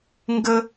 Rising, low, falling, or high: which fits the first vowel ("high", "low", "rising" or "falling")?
high